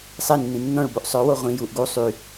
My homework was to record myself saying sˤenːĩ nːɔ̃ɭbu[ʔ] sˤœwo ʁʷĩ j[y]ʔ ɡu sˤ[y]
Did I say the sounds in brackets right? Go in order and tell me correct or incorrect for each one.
correct, incorrect: u, correct

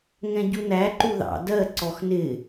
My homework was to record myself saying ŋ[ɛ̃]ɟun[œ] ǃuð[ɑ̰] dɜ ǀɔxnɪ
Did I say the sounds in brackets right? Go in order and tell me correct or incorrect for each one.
correct, incorrect: æ, correct

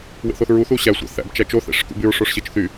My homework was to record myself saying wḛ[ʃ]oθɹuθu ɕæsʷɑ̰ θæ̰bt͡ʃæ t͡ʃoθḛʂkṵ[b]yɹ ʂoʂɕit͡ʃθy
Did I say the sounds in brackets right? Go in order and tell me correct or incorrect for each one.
incorrect: θ, correct

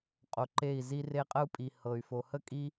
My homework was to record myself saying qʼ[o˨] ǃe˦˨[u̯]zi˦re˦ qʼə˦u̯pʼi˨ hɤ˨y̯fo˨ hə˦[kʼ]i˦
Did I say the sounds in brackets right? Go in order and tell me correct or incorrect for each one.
correct, incorrect: i̯, correct

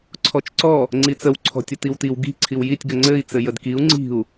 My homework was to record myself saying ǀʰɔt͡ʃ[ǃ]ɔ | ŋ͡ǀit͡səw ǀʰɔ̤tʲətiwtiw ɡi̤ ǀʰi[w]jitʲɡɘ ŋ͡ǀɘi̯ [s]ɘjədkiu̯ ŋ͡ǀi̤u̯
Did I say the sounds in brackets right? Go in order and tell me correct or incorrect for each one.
incorrect: ǀ, correct, incorrect: t͡s

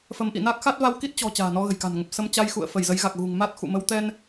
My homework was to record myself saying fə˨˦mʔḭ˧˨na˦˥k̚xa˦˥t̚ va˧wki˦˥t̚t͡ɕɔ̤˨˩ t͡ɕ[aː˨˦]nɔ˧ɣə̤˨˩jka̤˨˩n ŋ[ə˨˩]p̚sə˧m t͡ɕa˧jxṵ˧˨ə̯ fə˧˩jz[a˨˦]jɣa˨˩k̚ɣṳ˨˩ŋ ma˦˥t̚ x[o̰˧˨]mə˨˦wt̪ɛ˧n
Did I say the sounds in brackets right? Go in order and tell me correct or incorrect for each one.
incorrect: a̤ː˨˩, correct, incorrect: ə˨˦, incorrect: ṵ˧˨

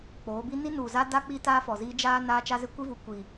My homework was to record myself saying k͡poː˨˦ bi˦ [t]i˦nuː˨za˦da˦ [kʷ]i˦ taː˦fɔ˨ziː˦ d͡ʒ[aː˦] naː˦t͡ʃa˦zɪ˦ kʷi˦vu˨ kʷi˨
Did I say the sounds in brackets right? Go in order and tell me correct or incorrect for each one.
incorrect: n, incorrect: k͡p, correct

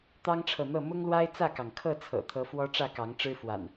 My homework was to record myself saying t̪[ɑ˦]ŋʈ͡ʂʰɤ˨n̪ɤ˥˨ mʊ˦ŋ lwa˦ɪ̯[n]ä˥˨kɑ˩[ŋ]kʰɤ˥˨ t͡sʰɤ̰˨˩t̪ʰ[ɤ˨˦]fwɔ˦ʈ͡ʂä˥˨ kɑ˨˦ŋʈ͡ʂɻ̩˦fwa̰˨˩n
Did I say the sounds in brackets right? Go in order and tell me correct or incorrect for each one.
correct, incorrect: t͡s, correct, correct

